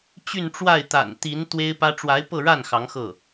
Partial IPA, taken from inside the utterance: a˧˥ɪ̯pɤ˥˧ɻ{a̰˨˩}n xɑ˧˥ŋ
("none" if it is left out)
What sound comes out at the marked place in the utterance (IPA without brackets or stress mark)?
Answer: a˥˩